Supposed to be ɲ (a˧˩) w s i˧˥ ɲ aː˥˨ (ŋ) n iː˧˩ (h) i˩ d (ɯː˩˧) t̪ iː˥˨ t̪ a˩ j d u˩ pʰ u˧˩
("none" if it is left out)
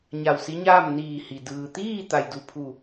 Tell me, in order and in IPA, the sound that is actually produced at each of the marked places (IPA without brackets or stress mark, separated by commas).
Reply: a˧˩, m, h, ɯː˩